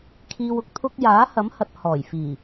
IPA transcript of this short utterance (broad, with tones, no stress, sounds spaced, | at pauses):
kʰ iː˨ w ʊ˨ k̚ t̪ʰ ʊ˧ k̚ j aː˨˥ h ɐ˨˥ m h ɐ˨ t̚ h ɔː˨˩ j f iː˨˩